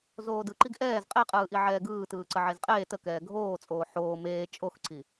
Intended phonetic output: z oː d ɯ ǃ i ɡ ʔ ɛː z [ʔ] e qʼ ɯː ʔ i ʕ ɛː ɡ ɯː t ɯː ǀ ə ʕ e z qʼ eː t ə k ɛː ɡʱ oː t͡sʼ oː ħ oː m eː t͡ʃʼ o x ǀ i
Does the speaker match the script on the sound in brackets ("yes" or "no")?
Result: no